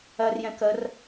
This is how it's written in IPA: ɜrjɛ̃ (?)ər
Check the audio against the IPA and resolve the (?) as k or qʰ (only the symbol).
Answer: k